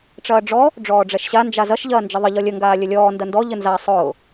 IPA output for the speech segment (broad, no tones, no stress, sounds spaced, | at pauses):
ʈ͡ʂ ɐː ɖ͡ʐ ɔ | ɖ͡ʐ ɔː ɖ͡ʐ ɛ ʃ ɕ a n d͡ʒ a z ɐ ʃ ʎ ɐː n d͡ʒ ə ðˤ ə ʎ ɔ lʲ ə ŋ ɡ aː lʲ ə lʲ ɔː n d ɐ n d ɔ ʎ ə n z a sˤ ʊː